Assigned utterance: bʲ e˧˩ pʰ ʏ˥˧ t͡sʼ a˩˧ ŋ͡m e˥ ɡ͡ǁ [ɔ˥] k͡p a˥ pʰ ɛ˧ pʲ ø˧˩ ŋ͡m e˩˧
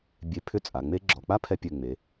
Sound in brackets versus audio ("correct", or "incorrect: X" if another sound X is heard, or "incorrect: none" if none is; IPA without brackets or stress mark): incorrect: ɔ˩˧